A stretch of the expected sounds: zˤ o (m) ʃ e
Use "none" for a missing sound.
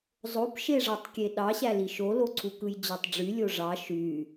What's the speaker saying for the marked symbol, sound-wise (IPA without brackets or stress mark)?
p